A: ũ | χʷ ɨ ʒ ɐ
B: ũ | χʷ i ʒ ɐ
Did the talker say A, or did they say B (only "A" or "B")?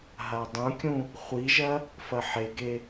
B